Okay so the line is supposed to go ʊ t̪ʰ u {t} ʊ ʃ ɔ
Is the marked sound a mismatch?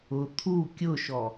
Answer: yes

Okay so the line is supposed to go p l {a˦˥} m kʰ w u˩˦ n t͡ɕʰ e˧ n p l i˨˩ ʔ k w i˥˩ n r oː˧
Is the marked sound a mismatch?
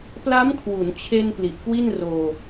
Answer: no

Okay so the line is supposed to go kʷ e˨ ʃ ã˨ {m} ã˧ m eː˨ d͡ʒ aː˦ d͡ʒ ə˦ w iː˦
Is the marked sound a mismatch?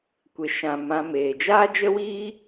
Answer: no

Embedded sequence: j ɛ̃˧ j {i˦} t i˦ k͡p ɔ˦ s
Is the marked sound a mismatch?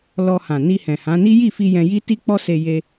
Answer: no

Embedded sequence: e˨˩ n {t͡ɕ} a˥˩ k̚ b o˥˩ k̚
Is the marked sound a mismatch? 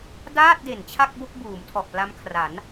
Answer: yes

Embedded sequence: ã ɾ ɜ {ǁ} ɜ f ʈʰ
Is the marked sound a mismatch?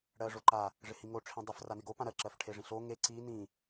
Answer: no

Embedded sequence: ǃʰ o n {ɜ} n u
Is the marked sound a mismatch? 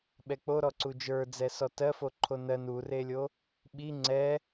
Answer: no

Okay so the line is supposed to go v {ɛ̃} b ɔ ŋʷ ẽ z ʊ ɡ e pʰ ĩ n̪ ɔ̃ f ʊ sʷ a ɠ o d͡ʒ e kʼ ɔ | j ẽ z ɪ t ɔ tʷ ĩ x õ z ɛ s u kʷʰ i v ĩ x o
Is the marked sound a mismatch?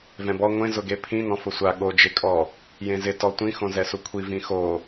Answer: no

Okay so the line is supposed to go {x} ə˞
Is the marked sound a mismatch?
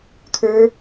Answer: yes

